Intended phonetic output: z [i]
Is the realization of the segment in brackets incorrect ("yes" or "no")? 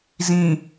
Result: yes